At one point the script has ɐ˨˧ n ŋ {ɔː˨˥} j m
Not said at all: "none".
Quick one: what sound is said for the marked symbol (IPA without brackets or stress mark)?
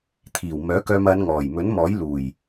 ɔː˨˩